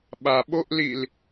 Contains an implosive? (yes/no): yes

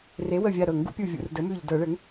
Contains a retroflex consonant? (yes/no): yes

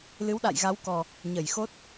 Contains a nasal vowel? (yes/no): no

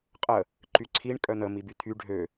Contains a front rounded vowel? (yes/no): yes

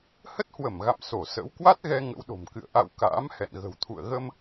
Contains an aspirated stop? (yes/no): yes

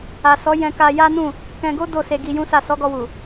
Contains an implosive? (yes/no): no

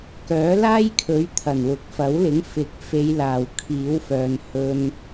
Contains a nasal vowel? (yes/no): no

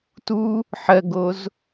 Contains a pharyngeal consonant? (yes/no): yes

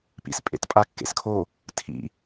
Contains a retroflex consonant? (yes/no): no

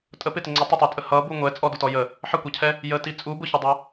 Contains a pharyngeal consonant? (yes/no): yes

